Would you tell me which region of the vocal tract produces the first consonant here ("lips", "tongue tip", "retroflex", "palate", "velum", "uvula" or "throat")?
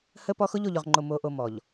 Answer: throat